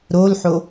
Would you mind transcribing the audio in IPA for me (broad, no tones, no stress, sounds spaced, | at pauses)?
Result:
ɾ o l ħ o